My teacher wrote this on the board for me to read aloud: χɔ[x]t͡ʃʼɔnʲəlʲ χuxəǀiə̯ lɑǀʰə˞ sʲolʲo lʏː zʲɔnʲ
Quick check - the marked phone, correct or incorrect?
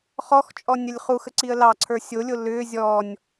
correct